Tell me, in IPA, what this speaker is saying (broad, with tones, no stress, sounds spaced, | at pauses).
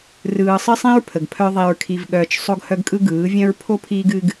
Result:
r ɯː˨ sˤ ɨ˦ sˤ ĩ˦ ɹ pʰ ə˨ ɡ pʰ œ˦ ðˤ i˨ ɹ kʰ i˨ v ɠ œː˨ t͡ʃ sˤ o˦ ɡ h œ˦ ɡ kʼ ɯ˦ ɡ ɯː˨˦ vʲ œ̃˦ ɹ pʰ o˦ pʰ iː˦ ɡ ɨ˦ ɡ